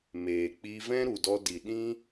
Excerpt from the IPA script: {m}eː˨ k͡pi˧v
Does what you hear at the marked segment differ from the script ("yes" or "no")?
no